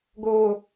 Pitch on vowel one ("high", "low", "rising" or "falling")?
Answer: low